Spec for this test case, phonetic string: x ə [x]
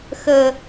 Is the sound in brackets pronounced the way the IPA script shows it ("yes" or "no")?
no